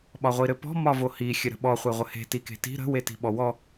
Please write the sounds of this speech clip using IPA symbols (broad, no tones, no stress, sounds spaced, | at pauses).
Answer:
ɓ ɒ ʁʷ i ɾ ɘ p ɔ̤ m ɒ v o h i xʲ ɘ ɾ ə̤ ɓ ɔ χʷ e ʁʷ ə h e̤ t i k e̤ t i̤ ɾ ə̤ w e t i̤ ɓ ɔ w ɔ